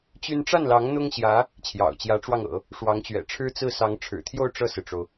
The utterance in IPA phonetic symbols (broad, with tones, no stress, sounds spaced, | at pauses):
t͡ɕ y˥ n ʈ͡ʂ a˥˩ n l ɑ˧˥ ŋ n̪ ʊ˥ ŋ ɕ j ä˧˥ | t͡ɕʰ j ɑ̰˨˩ ʊ̯ t͡ɕ j ä˧˥ ʈ͡ʂ w ɑ˧ ŋ ɤ̰˨˩˦ | ʂ w ɑ˧˥ ŋ t͡ɕ ɥ ɛ̰˨˩ ʈ͡ʂʰ ɻ̩˥ t͡s ɹ̩˥˩ s ɑ˧˥ ŋ ʈ͡ʂʰ ɻ̩˨˩ t̪ʰ j o˥˧ ʊ̯ ʈ͡ʂ ɤ˥˩ s ɹ̩˩ ʈ͡ʂ o˩ ʊ̯